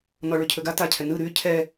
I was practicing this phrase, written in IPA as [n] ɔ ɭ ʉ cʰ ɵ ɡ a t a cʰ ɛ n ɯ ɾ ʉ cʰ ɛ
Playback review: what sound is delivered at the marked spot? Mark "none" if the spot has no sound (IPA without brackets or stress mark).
n